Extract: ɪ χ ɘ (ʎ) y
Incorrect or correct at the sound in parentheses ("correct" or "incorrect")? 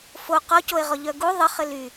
incorrect